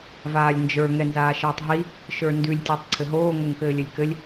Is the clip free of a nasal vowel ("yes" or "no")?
yes